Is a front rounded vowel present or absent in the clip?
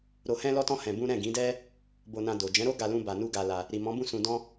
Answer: absent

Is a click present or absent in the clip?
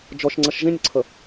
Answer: present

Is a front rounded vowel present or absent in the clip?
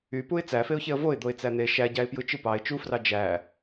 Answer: present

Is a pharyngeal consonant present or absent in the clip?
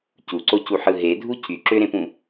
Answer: present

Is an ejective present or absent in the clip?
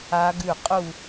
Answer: present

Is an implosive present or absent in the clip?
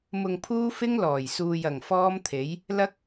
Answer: absent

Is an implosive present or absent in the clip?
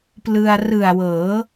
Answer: absent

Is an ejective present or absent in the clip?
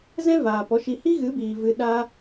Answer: absent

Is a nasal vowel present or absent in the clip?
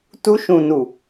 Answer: present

